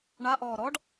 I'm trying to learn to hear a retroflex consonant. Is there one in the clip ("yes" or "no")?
yes